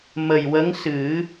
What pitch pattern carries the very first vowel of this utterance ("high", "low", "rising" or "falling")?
low